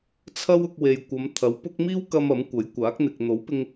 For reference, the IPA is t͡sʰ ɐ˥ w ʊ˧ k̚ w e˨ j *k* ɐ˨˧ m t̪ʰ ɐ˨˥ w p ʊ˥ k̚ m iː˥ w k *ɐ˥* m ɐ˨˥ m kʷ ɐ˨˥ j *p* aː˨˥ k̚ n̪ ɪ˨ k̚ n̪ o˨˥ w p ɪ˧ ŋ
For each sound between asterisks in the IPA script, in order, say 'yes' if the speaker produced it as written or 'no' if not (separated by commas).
no, no, no